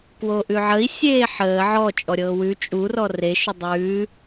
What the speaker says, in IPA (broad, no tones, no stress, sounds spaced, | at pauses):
k w o ʔ ʉ ʕ ə i̯ sʲ eː ħ əː ʕ ɔ t͡ʃʼ ɔ ɾʲ ɤː w ʉ t͡ʃʼ u r ɔ r e ʃ ʊ dˤ ʉː